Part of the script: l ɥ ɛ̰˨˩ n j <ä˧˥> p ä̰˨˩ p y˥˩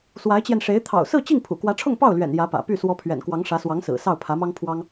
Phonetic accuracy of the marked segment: correct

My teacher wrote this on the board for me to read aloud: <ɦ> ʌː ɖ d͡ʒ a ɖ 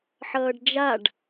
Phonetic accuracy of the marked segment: incorrect: ħ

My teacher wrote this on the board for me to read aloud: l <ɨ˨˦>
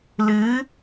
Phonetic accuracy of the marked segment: correct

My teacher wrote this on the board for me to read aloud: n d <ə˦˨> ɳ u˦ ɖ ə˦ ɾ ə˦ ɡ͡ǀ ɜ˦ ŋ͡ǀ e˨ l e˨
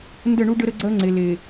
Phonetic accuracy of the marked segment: correct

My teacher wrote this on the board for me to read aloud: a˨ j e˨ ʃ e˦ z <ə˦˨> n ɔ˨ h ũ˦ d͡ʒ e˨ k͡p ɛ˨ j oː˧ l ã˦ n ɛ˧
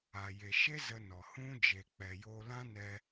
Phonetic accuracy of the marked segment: incorrect: ə˧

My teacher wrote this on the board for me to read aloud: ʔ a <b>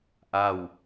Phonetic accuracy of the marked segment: incorrect: w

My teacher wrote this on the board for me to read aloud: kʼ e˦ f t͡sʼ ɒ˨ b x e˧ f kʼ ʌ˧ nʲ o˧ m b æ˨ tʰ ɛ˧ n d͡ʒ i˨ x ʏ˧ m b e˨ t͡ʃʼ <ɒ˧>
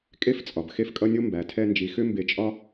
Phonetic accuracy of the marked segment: correct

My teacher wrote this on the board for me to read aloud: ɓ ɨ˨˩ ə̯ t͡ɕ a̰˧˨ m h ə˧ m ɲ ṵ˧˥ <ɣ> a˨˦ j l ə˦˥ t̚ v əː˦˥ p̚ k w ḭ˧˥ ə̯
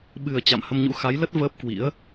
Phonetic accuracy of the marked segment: incorrect: x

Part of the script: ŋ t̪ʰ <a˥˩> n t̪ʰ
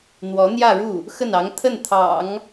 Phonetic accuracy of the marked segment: incorrect: ə˥˩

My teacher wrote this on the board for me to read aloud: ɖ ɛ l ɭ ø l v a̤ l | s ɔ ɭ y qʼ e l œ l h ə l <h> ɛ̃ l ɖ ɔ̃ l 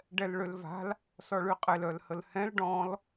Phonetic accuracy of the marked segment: correct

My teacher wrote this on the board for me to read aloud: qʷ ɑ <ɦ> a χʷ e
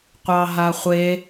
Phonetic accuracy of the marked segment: correct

